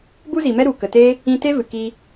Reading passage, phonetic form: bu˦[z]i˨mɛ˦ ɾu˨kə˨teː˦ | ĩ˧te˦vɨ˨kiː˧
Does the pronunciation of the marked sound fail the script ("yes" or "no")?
no